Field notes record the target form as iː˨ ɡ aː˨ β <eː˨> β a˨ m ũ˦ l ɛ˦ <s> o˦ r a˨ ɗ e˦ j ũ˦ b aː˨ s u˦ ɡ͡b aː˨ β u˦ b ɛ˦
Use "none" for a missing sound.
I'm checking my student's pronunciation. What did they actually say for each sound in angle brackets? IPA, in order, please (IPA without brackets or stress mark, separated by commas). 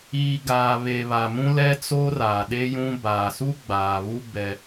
e˨, t͡s